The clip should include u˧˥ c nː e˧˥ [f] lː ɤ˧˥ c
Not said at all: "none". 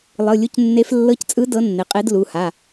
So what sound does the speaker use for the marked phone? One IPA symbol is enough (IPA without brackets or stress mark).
f